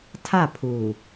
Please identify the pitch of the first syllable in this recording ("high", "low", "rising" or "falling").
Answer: falling